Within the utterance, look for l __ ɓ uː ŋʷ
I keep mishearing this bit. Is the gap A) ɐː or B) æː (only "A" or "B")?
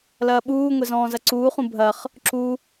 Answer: A